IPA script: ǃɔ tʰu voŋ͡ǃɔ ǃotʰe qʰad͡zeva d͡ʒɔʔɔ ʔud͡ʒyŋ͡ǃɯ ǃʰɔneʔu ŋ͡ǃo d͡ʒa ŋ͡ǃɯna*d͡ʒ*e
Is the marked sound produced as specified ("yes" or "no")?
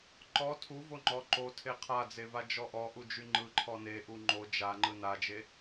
yes